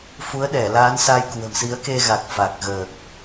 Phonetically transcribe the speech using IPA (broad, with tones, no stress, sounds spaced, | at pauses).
f u˨˦ ə̯ ɗ ɛ˧˩ l aː˨˦ n s a˧ j k w ə̤˨˩ m s i˨˦ ə̯ k e˧ ɣ a˨˩ k̚ f a˨˩ k̚ ɣ əː˨˩ k̚